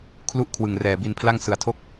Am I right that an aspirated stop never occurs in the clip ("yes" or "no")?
no